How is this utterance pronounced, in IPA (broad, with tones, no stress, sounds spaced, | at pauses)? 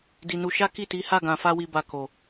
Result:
d i˨ n u˧ ʃ a˦ k i˦˨ t i˨˦ h a˦˨ ɡ ã˨ f a˧ w i˨ b a˨ k o˨